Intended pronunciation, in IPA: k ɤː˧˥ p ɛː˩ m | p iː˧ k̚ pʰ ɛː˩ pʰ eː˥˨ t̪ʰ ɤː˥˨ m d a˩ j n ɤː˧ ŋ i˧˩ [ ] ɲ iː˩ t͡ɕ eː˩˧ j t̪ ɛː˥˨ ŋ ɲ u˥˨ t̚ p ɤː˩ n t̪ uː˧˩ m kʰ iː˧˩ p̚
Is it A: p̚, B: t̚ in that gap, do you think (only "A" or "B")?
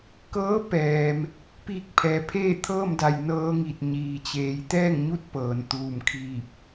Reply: B